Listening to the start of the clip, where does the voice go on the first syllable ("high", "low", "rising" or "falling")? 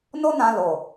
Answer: high